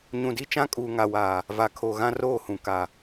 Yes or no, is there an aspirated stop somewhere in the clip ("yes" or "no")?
yes